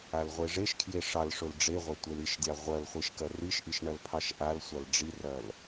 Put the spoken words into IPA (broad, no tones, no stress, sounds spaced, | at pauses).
a l ʁʷ e ʐ e ʃ kʰ j e ʂ ɑ l ʂ ʊ l ɖ͡ʐ e ʁʷ ɐ tʷ e l i ʃ dʲ ɑ ʁʷ ɐ l χʷ e ʃ k ɐ r i ʃ ʔ i ʃ ɳ ɐ l pʰ ɑ ʃ ʔ a l sʷ a l ɖ͡ʐ i r ɐ l